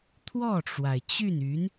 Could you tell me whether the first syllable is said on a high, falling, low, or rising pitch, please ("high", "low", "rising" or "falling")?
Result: falling